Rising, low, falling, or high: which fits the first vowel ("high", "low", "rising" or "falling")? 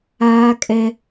high